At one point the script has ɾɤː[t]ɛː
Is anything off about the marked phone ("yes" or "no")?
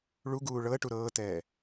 no